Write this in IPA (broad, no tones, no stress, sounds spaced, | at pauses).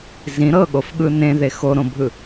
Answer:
z ĩ ɾ ɤ ɠ o f ɠ ɯ n ẽ ð e x o ɾ õ bʱ ɯ